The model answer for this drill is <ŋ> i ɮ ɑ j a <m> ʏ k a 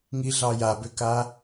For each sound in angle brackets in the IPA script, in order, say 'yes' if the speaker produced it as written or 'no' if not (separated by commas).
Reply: yes, no